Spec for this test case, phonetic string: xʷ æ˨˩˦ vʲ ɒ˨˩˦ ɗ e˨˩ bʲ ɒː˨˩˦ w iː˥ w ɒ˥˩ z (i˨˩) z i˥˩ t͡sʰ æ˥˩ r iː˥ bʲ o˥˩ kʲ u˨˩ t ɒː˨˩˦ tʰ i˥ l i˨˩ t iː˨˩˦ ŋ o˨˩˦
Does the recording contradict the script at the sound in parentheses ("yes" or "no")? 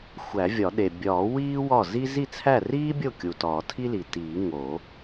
yes